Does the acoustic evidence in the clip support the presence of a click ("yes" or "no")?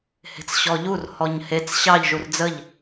no